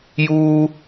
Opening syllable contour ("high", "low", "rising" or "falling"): high